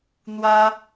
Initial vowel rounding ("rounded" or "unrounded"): unrounded